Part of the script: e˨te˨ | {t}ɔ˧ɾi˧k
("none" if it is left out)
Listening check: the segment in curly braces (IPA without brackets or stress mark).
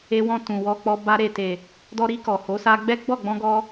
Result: d